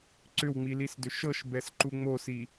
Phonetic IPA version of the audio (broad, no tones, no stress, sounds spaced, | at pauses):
ǀ ʏ w ŋ͡m i l i s d ʏ ʃ ɤ ʃ b ɛ s ǃ u ŋ͡m o s i